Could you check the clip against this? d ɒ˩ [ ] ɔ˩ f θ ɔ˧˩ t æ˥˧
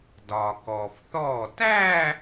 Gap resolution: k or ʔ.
k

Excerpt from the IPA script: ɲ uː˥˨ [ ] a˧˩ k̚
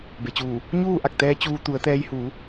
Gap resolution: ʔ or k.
ʔ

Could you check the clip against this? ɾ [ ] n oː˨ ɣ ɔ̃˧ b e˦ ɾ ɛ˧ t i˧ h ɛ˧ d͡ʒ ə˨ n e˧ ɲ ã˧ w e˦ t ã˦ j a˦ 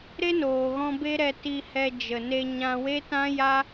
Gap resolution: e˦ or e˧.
e˦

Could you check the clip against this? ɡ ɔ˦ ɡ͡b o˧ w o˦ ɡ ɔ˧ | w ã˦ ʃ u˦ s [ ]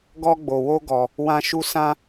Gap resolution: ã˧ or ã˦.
ã˦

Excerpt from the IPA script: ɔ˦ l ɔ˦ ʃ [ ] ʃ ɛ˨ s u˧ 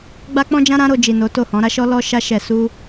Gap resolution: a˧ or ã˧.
a˧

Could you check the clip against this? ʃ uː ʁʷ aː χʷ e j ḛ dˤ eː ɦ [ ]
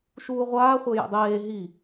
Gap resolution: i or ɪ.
i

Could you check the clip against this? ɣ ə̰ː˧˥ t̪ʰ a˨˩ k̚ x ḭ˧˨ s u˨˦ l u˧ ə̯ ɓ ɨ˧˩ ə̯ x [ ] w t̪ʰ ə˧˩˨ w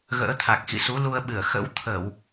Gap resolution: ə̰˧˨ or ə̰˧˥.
ə̰˧˥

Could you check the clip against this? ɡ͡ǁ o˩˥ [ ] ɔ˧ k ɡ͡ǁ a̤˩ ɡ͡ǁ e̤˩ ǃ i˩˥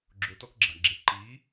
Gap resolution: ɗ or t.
t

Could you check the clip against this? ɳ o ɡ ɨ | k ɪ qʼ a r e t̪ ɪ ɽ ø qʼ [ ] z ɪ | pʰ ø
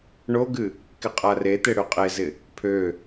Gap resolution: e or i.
e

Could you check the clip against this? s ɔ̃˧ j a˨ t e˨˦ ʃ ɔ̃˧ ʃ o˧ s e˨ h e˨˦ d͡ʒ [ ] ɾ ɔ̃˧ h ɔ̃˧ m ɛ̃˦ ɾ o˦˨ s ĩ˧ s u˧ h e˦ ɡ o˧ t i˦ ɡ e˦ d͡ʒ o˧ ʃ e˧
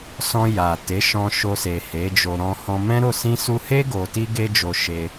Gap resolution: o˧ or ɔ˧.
o˧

